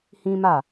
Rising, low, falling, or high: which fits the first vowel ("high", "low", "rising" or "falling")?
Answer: high